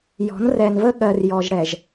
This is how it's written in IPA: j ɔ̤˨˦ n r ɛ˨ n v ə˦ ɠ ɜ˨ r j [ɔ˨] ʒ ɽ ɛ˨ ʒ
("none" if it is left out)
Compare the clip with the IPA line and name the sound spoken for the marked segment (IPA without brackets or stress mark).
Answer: ɔ˨